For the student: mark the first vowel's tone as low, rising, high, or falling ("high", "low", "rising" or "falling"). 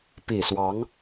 low